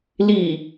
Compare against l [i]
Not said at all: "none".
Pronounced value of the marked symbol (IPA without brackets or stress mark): i